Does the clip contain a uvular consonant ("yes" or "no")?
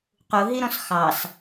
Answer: yes